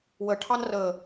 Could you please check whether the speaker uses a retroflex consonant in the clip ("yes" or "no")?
yes